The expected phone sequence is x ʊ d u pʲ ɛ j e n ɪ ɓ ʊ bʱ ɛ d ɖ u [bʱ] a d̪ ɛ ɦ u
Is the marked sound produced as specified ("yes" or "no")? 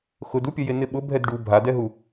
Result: yes